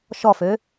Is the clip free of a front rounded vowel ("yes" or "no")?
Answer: no